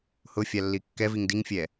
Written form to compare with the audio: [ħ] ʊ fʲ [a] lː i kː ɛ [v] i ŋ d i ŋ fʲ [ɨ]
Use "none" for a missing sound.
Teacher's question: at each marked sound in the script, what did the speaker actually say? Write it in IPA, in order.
h, a, v, ɛ

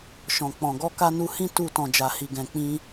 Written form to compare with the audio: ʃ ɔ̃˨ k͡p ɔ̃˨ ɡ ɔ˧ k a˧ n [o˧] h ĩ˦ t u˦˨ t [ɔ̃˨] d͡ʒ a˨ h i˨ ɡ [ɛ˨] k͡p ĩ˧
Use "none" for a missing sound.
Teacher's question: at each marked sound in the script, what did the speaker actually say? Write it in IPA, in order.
u˧, ɔ̃˨, ɛ̃˨

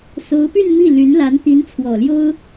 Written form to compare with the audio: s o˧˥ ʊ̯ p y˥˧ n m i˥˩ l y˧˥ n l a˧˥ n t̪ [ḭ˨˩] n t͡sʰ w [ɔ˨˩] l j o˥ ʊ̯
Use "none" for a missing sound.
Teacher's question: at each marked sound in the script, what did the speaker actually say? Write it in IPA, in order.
i˧˥, ɔ˨˩

